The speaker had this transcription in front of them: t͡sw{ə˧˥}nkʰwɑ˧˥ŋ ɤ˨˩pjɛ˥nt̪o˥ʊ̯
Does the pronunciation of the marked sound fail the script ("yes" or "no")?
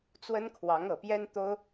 yes